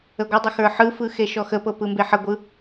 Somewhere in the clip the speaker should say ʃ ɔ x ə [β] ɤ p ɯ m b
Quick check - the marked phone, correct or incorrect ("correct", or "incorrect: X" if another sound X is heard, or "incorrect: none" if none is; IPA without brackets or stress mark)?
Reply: incorrect: p